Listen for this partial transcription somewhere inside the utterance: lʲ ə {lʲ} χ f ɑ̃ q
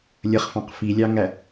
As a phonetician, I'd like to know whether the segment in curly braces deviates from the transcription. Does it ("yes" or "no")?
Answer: yes